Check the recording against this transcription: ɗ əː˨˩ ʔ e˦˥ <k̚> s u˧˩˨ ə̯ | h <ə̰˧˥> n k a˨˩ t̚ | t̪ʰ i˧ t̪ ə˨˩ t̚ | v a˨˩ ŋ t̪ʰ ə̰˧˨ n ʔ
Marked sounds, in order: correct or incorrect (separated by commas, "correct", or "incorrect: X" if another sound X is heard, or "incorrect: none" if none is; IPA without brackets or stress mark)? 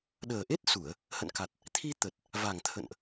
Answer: incorrect: t̚, incorrect: ə̰˧˨